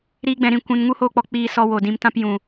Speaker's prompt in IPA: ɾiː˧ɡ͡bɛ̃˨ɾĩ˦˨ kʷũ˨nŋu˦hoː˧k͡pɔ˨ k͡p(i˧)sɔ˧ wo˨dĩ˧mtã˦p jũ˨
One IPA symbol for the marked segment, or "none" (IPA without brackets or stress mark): iː˧